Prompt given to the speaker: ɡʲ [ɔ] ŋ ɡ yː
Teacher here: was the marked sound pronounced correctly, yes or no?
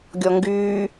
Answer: yes